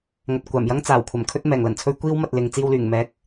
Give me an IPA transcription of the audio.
ŋ ɐ˨ t̚ kʷ aː˨˩ m j ɐ˥ ŋ t͡s aː˨˩ w kʷʰ ɐ˨˩ m kʰ ɵ˥ t̚ m ɛː˨˩ ŋ l ɐ˨˩ n t͡sʰ ɵ˥ ɥ kʷ iː˥ w m ɐ˨ t̚ l ɪ˨ ŋ t͡s iː˧ w l yː˨˩ ŋ m ɛː˨˥ k̚

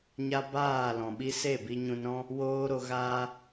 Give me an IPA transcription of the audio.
ɲ a˦ b aː˦˨ l ɔ̃˨ ɓ i˦ s e˦˨ b i˧ ɲ ũ˧ n ɾ ɔ̃˦ | w oː˦ ɾ o˧ ɣ aː˦

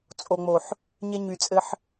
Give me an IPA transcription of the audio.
t͡sʼ o˨ ŋ͡m o˨ ħ | ɲ e˧ ɲ y˨ t͡sʼ ɘ˧ ħ

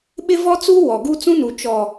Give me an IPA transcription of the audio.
ɓ ɪ˦ v ɔ˦ t͡s uː˦ w ɔ˨ ɡ u˦ t͡s ũ˦ n u˨ t͡ʃ ɔ˨

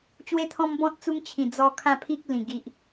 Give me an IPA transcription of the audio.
t͡ɕ w e˦ t̪ʰ ɔ̃˦ m b ɔ̃˦ t̚ t͡s u˦ ŋ t͡ɕʰ ĩ˨˩ d͡z ɔ˧ kʰ ã˥˧ pʰ i˦ k̚ l ĩ˨˩ ɡ i˨ ʔ

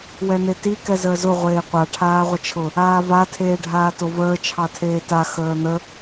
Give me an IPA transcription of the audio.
w ɛ n̪ e t i k ɛ z əː z ʊ ʁʷ eː qʷ a ʈʰ aː ʁʷ ə t͡ʃʰ ʊ | aː v a tʰ eː ɖʱ aː t o v əː t͡ʃʰ ɑ tʰ eː t a x əː n̪ ə

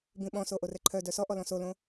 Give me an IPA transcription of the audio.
b ĩ ɓ ɔ̃ s o ʔ o r ɛ ǃʰ œ d œ s ɔ ʔ ɔ l ɔ̃ s o l õ

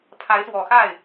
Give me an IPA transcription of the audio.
pʰ a˧˥ ɪ̯ s w ɔ˨˩ x a˥˩ ɪ̯

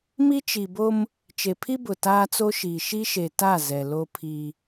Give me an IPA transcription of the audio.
m i˦ t͡ʃ i˨ b o˦ m | t͡ʃ e˨ pʰ i˦ b ʊ˨ t aː˦ t͡s o˦ ʃ iː˨ ʃ i˦ ʃ e˨ t a˦˨ z ɛ˨ l o˦ pʰ i˦

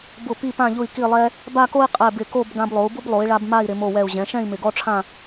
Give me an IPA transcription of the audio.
b ʊ˧˩ p i˧˩ p ã˧˩ ʎ ʊ˧˩ i̯ k i˧˩ lˠ ɛ˧ | b a˥˧ k o˥ i̯ qʼ ɛ˧˩ b ɪ˧˩ k o˥˧ b ɡ ã˧ b lˠ o˩˧ u̯ b ʊ˥ b lˠ o˩˧ i̯ ɭ a˧ b m a˥˧ i̯ ɾ ɪ˩˧ m o˧˩ w ɛ˧˩ u̯ ʑ ɛ̃˩˧ ʃ ɛ̃˥˧ i̯ m ɪ˧˩ ɡ ɔ˥ ʈ͡ʂʰ ã˥˧

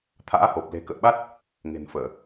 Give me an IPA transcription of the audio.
t̪ʰ a̰ː˧˥ h o˨˩ p̚ l e̤˨˩ k ə̰ː˧˨ ɓ a˦˥ t̚ | ŋ e̤˨˩ n f əː˧˩˨

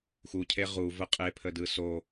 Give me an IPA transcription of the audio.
x u cʰ e ʁ u v ə qʼ e pʰ ə d ɯ s o

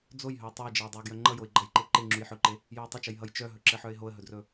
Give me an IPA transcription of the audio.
d͡z o j ɦ ɵ ɪ̯ tˤ ɵ ɪ̯ d͡ʒ ɘ ʊ̯ dˤ ɘ ʊ̯ ɡ j œ ŋ͡ǃ ʌ j o ɪ̯ ɡ͡ǃ ʌ j ǃ e ǃ e ŋ͡ǁ u j ħ ɵ ǃ e | j o ɪ̯ tˤ ɘ t͡ʃ ʌ j ɦ ʌ j t͡ʃ œ ɦ ɵ ǁ ɘ ħ œ ɪ̯ ɦ o ə̯ ɦ ɵ d r ɵ

